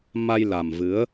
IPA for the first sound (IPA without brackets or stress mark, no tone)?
m